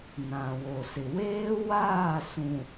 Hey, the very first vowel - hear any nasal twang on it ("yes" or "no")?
yes